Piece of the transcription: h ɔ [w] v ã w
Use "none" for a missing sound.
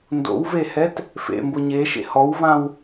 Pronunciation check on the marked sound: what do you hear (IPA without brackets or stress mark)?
w